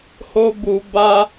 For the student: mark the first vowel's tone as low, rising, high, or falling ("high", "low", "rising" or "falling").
high